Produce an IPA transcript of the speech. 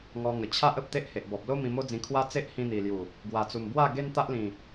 ŋɔ˧ŋə˨˩ t͡ɕʰa˦ʔə˨p̚ t̪e˦ʔhe˨ʔbɔ˨p̚ lo˦ mĩ˧mo˦d͡zĩ˧ kʰwa˦ t͡se˦ʔhĩ˧n̪i˨˩lju˨˩ | ɡwa˨˩t͡su˨˩mbwa˥˧ ɡe˦nt̪a˦ʔlĩ˨˩

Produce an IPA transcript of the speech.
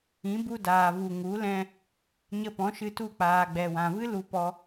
ĩ˨˦bu˧daː˨vu˨ ŋu˨˦ lɛ̃˦ | ɲə˧pɔ̃˨˦ʃɨ˧tu˦˨ k͡paː˨ɡ͡bɛ˨wã˨vɨ˦ lu˦pɔ˦

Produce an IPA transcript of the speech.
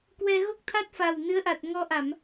kwɛ˧ɣo˦˥k̚t̪ʰa˦˥t̚ fa˨˩wnɨ˨˦ə̯ʔa˨˩t̚ ŋɔ˧ʔa˧˩˨m

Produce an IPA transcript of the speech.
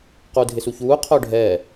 quːdʱɪsuçuː qʰʊːɖʱɛː

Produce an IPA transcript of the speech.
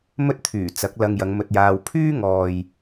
mɵ˥t̚t̪ʰyː˨˩ t͡sɐ˨˥k̚ lɐ˧ŋjɐ˨˧ŋmɵ˧t̚jaː˧w pʰyː˥ŋɔː˨j

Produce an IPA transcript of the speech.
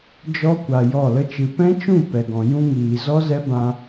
d͡ʒɔ˦kʷa˨ jɔ˦˨lə˦t͡ʃɨ˧ pɛ̃˦t͡ʃũ˦˨ pɛ˨ɡɔ̃˨ jũ˦ŋiː˨ zɔ˦zɛ˦bã˧

